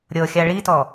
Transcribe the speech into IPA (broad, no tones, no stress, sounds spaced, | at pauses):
ɾʲ ɤ xʲ a ɭ i t ɔ